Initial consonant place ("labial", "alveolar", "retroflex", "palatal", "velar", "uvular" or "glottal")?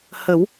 glottal